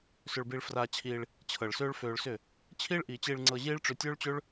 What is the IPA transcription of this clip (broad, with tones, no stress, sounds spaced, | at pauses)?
s ʏ˧ ɭ b i˧ ɭ f r aː˧ t͡ɕʰ iː˧ ɭ | t͡ɕʰ ɤ˨ ɭ s øː˦ ɭ f øː˧ ɭ s ʏ˦˨ | t͡ɕʰ iː˦ ɭ ʔ iː˨ t͡ɕ i˧ ɭ ŋ͡ǀ ɤ˧ ʑ iː˦ ɭ ʈ͡ʂ ʏ˧ tʲ øː˦ ɭ t͡ɕ ø˦ ɭ